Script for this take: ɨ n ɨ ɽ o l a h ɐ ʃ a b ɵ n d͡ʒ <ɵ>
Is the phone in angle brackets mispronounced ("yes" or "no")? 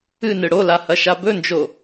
yes